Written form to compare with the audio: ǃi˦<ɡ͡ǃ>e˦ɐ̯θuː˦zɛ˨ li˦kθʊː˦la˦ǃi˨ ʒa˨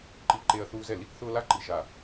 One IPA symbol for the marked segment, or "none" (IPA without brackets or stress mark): ǃ